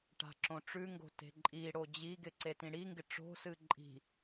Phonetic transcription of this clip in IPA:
ʈa̤ǁõʈ͡ʂʉŋɡo̤ te̤ǃʼiɽo d͡ʑiɡɪ ǀetĩɽiŋɡɪ ʈ͡ʂo̤sɨ ǃʼi̤

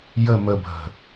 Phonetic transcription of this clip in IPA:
jə məbʱə̤

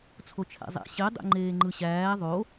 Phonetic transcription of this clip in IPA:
t͡sʰot͡ʃʰæ̰zˤæ̰ ɕe dˤḛŋ͡ǃeːŋ͡ǃɯɕæː ðˤo

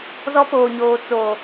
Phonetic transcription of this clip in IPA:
zɔ˦poː˨ɲoː˨ t͡so˨

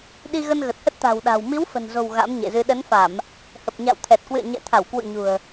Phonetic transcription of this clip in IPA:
ɗi˧ɣə˧nɣə˨˩t̚hə˦˥t̚ t̪a̤˨˩wɗa̤˨˩w mi˨˦wfə̤˨˩nzo̤˨˩w ɣa̰˧˥mɲḛ˧˨zɨ˧ ɗə˨˦nfa˧˩˨m | hə˨˩p̚ɲa̰˧˨wt̪ʰɛ˨˩t̚kwɨ̰˧˨ə̯ ɲɛ̰˧˨t̪ʰa˧˩wkwṵ˧˨ ɲṳ˨˩ə̯

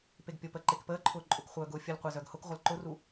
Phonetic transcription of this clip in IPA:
peɡpʲʊpəː ǃekpəːǃʰʊː ǃʼʊkχʷœː ɡʊːfʲəlqʷe zœɡhʊkʁʷəl ǃʊru

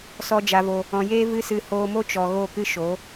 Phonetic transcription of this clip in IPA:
sɔ˨ d͡ʒa˨vo˨ | ɔ̃˨jeː˦ vɨ˦sɨ˧ hoː˧mo˦t͡ʃɔ˨ ɣo˦˨kɨ˦ʃo˨˦

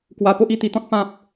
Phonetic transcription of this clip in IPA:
kwa˦ po˦ʔi˧t̪i˧t̪ɔ̃˦t̚ pã˦p̚

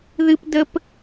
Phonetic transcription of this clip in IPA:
ðɨ˥pdə˥p

